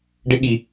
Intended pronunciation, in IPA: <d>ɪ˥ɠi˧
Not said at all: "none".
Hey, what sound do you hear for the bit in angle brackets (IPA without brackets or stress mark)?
ɖ